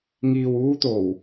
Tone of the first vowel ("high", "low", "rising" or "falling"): low